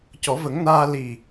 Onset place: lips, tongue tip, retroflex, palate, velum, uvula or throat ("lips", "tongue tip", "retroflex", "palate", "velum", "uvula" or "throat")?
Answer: palate